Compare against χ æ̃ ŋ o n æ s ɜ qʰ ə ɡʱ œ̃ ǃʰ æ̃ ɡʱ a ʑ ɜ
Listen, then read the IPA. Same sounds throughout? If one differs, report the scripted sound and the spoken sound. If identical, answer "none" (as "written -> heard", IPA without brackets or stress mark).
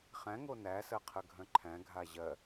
none